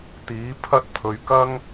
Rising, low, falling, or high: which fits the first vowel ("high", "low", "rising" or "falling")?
rising